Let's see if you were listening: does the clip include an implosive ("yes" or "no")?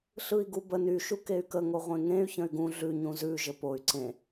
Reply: no